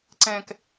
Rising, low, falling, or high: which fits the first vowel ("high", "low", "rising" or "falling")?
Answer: low